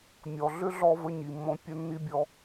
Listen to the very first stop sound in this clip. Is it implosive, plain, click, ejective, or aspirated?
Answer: plain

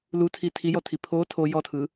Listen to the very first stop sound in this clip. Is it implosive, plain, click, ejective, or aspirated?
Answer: aspirated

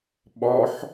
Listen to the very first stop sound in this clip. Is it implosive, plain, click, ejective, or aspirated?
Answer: implosive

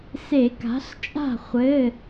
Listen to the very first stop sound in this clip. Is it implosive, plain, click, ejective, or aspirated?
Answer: plain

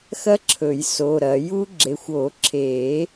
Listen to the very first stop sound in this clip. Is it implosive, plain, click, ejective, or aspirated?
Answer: click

